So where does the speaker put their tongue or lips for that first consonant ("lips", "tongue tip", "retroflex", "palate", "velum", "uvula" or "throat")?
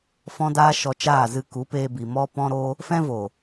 lips